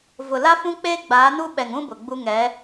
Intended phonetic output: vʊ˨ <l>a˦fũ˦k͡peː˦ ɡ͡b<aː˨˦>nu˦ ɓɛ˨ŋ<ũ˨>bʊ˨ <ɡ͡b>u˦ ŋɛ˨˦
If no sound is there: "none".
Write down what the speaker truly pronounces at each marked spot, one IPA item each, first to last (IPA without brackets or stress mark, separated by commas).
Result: l, aː˨˦, ũ˦, ɡ͡b